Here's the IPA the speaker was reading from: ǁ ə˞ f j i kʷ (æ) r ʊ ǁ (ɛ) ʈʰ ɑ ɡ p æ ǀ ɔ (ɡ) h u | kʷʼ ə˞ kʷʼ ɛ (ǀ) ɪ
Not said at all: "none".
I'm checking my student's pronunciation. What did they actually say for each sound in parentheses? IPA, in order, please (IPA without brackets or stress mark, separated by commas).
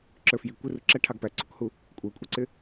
ɛ, æ, k, ǀ